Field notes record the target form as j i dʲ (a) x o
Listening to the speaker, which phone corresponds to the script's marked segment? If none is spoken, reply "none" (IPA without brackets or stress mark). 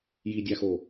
a